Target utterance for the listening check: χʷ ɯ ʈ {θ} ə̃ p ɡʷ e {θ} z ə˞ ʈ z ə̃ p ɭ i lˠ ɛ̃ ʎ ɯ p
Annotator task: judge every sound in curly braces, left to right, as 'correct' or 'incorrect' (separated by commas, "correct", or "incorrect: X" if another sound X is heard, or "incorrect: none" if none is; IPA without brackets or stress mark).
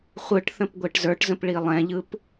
correct, incorrect: ʈ